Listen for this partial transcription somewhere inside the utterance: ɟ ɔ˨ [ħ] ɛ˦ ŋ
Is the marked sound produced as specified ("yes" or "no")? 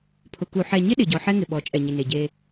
yes